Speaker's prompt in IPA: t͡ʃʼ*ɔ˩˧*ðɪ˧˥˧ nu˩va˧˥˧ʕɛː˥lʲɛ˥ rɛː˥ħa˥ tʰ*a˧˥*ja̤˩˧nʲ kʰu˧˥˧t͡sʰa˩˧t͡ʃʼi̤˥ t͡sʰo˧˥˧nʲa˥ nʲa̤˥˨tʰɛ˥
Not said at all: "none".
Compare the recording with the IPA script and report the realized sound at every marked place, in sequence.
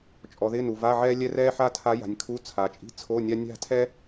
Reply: ɔ˩˧, a˧˥

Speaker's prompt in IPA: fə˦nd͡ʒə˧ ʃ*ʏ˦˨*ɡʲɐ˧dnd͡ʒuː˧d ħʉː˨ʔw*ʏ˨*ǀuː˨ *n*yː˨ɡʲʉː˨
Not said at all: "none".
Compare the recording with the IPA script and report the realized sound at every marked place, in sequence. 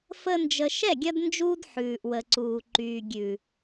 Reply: ɛ˦˨, ə˨, ǃ

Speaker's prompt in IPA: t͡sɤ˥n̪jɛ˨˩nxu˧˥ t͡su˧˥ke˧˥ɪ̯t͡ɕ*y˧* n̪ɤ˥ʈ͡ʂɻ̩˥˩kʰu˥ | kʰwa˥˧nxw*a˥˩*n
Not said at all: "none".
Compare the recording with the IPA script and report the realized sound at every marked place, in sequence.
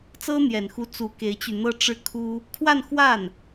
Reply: y˧, a˥˩

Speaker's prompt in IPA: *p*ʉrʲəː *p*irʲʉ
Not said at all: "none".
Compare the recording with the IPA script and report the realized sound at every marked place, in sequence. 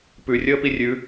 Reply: p, p

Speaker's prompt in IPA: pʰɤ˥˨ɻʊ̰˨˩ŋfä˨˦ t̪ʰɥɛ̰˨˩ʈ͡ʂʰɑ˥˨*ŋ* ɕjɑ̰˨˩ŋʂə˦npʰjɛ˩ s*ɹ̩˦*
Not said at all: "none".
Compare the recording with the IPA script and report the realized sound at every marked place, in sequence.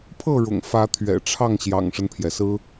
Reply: ŋ, ɹ̩˦

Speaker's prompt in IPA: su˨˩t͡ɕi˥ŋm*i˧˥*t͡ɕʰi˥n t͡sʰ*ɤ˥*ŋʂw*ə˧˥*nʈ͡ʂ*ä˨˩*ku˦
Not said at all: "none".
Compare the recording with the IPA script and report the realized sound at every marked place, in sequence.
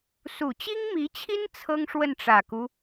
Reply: i˧˥, ɤ˥, ə˥˩, ä˨˩

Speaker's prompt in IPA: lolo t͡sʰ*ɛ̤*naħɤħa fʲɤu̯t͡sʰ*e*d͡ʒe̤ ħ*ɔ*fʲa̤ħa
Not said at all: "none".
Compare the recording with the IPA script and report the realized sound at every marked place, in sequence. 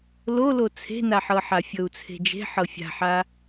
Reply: e̤, e̤, ɤ

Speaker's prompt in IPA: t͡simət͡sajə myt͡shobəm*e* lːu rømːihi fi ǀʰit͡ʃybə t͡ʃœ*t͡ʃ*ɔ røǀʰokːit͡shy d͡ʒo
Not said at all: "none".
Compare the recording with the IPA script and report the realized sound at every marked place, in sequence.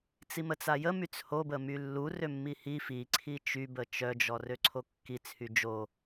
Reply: y, d͡ʒ

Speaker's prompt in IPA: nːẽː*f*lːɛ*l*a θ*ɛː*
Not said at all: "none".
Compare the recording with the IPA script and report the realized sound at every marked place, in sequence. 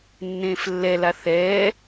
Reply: f, l, ɛː

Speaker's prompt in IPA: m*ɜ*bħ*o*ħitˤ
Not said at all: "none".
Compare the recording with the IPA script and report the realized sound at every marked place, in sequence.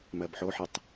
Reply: ɜ, o

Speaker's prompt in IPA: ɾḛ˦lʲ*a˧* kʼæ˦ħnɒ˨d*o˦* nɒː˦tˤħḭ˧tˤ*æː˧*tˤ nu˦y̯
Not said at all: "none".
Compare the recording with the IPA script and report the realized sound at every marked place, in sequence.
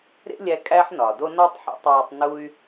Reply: æ˧, o˦, æː˧

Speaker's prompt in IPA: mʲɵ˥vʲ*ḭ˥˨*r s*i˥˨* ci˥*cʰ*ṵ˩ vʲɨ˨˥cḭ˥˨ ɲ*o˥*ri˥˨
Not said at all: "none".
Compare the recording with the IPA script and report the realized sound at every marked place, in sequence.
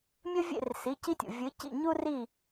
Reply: ḛ˥˨, i˩˧˩, tʲ, u˥

